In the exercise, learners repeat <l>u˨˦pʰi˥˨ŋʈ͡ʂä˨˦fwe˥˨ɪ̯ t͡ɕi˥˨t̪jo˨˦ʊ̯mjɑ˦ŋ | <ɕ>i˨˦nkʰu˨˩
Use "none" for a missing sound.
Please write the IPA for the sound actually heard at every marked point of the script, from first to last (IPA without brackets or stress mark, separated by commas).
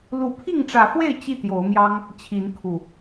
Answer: l, t͡ɕʰ